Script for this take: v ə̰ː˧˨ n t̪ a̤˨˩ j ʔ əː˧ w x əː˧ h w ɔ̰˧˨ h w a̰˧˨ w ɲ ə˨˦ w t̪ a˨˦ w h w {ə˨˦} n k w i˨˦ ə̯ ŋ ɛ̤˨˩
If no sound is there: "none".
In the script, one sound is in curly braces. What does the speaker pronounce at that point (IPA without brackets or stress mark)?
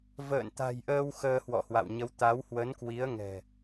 ə˨˦